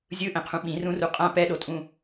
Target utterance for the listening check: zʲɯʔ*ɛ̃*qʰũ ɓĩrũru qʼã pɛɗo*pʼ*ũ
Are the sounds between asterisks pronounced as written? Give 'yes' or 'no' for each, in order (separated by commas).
yes, no